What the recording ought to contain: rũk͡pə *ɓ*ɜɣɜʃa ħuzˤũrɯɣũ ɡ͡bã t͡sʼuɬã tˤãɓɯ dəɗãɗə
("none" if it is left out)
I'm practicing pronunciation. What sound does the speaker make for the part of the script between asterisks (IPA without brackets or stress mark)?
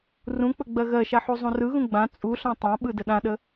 ɡ͡b